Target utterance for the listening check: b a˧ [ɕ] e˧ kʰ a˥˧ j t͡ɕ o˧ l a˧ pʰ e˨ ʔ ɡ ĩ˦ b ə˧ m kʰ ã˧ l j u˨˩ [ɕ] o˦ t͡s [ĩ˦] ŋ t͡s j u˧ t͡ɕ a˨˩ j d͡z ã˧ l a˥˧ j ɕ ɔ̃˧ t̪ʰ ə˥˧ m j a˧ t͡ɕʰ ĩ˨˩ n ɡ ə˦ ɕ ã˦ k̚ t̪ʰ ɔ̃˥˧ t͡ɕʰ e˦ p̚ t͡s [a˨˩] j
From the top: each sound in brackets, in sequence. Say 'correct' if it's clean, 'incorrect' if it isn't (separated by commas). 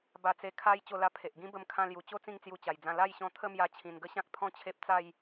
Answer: incorrect, incorrect, incorrect, incorrect